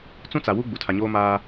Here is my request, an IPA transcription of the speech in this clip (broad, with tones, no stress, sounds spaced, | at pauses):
t͡s ũ˦ t͡s a˨ w u˦ ɡ͡b u˨ tʰ a˨ ɲ oː˦ m aː˦